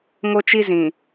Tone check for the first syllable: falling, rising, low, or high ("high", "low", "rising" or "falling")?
high